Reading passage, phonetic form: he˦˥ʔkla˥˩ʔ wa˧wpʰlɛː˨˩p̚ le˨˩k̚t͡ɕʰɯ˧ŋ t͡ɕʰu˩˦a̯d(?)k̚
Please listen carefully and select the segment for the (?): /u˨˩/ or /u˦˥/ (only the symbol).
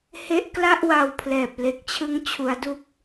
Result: u˦˥